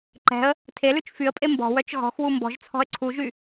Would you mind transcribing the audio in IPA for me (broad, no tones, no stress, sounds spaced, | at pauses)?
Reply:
ǃ ɛ̤ ə̯ | tʰ e l ʉ t͡ʃ f y ə̯ pʼ e m b ɔ̤ w œ t͡ʃ ɣ ɔ̤ x w u m b ɔ̤ ʒ t͡sʰ ɔ̤ ə̯ ǀʰ u ʒ y